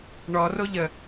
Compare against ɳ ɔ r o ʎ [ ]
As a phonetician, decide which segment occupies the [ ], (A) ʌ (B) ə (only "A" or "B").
B